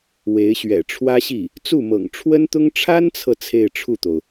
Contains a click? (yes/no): no